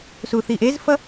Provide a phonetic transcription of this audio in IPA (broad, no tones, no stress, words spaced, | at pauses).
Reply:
suθiʔezfʌ